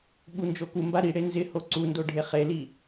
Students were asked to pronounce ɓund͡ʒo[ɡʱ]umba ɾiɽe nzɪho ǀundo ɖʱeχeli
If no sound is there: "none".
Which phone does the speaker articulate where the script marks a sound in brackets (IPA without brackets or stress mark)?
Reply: k